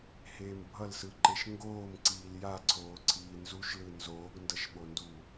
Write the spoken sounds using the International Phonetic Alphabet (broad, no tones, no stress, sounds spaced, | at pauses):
h eː m bʱ ʌ l s ɯ ǃ e ʃ ŋ ɡ oː m ǀ iː l j a ǀʰ oː ǀʰ iː n z u ʃ l ɯ n z oː ɡ n d ʌ ʃ ɓ o n d u